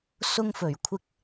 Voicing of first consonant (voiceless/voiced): voiceless